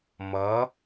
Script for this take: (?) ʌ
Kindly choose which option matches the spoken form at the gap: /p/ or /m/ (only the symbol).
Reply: m